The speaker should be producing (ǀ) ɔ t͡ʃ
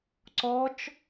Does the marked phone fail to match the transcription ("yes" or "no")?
no